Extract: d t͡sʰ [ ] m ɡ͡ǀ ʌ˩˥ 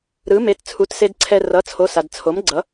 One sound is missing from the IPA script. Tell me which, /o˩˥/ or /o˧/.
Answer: o˩˥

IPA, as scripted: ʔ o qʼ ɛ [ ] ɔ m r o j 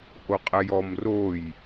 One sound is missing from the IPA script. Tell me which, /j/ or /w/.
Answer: j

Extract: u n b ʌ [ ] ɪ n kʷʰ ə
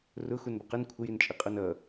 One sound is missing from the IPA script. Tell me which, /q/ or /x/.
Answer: q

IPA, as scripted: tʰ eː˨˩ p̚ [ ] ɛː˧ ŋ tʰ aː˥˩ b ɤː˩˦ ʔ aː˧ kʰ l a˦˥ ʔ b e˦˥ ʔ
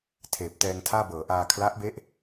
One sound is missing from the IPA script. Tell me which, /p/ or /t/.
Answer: t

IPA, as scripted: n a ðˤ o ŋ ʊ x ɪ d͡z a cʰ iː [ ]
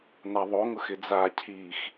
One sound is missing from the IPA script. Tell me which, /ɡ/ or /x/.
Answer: x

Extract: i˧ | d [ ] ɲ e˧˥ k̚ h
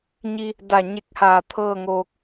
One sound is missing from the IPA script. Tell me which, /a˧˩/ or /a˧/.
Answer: a˧˩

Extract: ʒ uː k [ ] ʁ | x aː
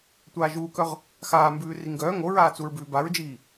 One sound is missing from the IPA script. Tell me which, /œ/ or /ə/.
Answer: œ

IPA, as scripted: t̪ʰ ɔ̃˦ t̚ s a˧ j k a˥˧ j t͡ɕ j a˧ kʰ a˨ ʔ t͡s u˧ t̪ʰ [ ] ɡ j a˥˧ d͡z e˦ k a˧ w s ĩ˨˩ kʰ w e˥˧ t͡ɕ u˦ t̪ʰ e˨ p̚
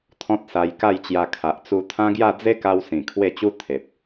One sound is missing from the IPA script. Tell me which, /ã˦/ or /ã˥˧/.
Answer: ã˦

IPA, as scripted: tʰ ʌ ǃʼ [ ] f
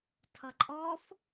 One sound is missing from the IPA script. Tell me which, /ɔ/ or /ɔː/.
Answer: ɔː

